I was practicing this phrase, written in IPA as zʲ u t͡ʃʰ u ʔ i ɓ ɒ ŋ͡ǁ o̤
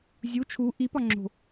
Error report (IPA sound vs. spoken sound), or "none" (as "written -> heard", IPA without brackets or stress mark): ɓ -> p